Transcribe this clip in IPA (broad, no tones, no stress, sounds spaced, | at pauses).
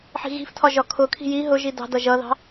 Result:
ħ i̤ ɣ i̤ f tʰ ɒ ʒ ɒ kʰ ʊ kʰ i̤ j i ɦ ʊ ʒ i d ɑ̤ d ʌ ʒ ʌ ð ɑ̤